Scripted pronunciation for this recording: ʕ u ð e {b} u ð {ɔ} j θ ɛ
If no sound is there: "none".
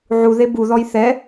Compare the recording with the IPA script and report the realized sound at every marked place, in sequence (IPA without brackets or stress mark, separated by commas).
b, ɔ